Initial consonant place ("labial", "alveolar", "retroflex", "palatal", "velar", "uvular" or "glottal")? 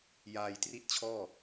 palatal